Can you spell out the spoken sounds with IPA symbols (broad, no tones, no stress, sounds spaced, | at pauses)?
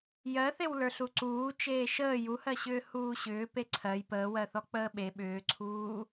j ɜ θ e w l ə˞ ɬ u ǀ uː t͡ʃ eː ʃ əː j u h ɜ ɕ ʏː h uː ɕ ʏː p e ǀʰ ɜ j p əː w ɜ θ ɔ k͡p əː ɓ e ɓ ʏː ǀʰ uː